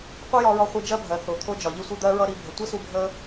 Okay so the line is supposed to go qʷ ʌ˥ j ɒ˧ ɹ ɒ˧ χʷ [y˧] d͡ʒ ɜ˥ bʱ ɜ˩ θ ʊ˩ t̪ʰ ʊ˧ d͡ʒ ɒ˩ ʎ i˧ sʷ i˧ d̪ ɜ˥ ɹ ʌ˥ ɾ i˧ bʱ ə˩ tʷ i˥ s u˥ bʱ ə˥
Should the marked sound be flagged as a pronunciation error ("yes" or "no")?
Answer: yes